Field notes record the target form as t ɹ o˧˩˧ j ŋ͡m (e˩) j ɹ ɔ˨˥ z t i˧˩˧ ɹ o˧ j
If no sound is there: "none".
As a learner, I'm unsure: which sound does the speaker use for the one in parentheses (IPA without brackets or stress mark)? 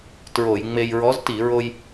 e˧